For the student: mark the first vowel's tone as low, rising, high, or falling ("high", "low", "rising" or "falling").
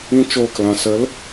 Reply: high